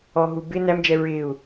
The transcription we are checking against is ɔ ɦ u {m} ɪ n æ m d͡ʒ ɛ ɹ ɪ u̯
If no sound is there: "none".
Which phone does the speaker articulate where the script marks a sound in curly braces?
b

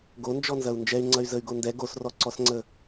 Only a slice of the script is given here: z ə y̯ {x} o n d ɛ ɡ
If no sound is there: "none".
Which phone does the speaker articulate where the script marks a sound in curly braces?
ɡ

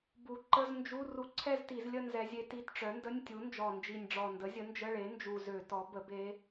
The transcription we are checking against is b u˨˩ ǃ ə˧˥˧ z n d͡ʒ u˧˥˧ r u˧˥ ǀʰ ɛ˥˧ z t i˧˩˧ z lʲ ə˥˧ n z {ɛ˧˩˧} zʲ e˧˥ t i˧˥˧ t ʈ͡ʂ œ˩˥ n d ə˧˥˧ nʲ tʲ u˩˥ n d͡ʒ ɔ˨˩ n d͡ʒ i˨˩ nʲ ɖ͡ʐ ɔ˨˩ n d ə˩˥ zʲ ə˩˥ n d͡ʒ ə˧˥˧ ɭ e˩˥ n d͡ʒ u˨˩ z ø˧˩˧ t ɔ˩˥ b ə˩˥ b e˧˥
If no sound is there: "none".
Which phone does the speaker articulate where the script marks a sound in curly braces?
ɛ˧˥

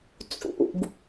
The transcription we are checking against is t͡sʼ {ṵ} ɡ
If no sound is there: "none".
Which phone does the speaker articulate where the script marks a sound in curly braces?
ṵ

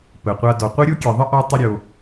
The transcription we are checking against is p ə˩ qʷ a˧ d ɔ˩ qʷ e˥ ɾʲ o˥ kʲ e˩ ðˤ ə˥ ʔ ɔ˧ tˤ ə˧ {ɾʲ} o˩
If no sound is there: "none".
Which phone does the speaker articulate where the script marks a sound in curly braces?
ɾʲ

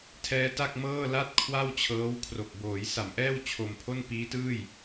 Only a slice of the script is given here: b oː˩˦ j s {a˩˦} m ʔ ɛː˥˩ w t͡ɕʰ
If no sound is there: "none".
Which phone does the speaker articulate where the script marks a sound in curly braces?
a˩˦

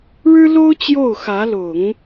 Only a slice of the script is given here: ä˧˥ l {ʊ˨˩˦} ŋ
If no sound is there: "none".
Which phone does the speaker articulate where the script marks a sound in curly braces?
ʊ˨˩˦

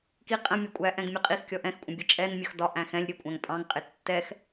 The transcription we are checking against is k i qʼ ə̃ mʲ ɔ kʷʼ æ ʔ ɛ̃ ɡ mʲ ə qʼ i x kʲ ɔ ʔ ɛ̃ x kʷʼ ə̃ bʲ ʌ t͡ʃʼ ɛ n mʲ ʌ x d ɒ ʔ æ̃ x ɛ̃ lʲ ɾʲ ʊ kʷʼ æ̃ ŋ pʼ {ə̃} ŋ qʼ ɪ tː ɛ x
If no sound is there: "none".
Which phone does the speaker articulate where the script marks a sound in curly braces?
ɑ̃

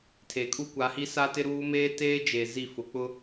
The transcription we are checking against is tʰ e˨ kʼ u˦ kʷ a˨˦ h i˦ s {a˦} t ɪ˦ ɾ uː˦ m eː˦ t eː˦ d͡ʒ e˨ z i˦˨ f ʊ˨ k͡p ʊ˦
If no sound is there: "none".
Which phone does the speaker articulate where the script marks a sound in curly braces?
a˦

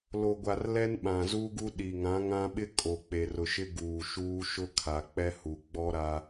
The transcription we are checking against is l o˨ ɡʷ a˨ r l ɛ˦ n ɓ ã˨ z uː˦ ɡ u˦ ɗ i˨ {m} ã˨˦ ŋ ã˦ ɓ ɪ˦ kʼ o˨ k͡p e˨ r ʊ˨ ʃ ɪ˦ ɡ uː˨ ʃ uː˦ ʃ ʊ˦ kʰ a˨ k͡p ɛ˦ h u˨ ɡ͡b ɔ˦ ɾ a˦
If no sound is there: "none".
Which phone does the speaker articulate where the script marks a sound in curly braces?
ŋ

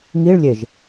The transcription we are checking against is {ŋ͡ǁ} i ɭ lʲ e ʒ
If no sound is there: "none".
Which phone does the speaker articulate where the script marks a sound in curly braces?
ŋ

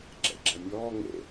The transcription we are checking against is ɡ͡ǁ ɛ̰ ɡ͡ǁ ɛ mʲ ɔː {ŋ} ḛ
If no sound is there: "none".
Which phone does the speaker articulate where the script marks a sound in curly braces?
ŋ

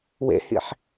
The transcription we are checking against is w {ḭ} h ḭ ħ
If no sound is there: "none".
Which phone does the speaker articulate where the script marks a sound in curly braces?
ḛ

